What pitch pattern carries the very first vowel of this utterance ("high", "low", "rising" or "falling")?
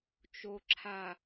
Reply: low